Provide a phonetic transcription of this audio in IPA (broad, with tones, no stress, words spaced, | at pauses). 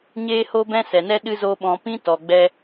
ɲeː˦ho˦bɛ̃˦ sɛ˨nɛ˦ɗɨ˦ zo˦ɓɔ̃˧ pĩ˦tɔ˨ɡ͡bɛ˧